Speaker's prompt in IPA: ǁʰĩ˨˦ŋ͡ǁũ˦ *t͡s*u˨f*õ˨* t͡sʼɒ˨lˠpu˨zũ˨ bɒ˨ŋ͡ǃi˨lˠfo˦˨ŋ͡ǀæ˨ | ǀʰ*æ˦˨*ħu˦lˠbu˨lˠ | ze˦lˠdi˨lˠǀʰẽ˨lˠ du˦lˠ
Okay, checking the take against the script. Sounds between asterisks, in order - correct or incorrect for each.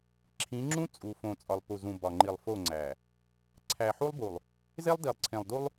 incorrect, correct, incorrect

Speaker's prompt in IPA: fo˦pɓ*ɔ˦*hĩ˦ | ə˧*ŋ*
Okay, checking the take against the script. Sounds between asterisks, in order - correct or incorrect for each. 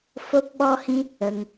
correct, correct

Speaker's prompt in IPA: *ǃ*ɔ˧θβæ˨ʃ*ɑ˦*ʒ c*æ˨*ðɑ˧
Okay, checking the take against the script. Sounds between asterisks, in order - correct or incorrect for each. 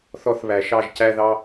incorrect, incorrect, incorrect

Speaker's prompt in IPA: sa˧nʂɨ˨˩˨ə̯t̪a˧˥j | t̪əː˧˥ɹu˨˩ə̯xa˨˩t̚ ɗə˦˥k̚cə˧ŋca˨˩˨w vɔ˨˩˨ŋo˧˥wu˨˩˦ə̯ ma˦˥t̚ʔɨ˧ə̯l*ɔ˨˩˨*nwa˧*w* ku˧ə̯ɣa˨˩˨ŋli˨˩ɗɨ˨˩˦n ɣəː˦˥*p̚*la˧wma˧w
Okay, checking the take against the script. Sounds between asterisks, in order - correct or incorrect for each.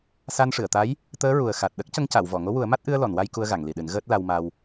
correct, incorrect, incorrect

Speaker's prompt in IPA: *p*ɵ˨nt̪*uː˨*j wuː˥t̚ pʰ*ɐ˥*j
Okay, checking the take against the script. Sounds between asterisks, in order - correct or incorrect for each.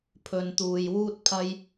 incorrect, correct, correct

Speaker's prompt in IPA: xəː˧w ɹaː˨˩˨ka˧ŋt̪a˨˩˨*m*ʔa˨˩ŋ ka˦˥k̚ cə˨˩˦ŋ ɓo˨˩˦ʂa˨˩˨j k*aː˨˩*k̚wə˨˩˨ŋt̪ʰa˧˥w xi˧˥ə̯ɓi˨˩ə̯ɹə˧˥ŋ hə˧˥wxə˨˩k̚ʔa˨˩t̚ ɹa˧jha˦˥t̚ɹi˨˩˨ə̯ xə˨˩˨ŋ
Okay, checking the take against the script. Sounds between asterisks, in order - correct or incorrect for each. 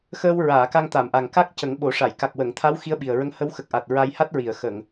correct, incorrect

